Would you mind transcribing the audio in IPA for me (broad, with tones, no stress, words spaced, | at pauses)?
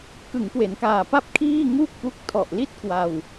kɯ˩˦ŋkwe˩˦nkaː˨˩pa˥˩p̚ kʰiː˥˩ŋu˥˩k̚pu˦˥k̚ tʰɔ˨˩ʔli˥˩t̚kwa˧w